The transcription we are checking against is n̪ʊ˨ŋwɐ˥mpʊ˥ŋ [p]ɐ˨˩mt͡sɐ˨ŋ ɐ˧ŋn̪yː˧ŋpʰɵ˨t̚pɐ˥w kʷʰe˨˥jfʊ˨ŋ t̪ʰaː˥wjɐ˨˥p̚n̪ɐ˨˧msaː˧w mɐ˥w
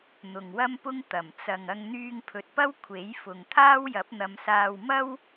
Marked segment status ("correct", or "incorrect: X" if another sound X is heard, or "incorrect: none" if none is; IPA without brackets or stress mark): incorrect: t̪